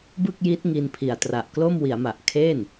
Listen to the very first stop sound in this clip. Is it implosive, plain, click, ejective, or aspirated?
plain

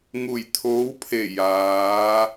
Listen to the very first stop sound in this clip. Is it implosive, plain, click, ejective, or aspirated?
aspirated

